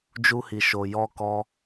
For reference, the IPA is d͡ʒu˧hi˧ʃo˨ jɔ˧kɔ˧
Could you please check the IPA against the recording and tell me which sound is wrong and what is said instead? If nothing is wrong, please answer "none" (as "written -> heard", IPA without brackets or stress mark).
i˧ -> i˨